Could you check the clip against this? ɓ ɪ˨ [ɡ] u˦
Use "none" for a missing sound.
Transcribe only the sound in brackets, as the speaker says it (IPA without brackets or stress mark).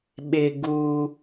ɡ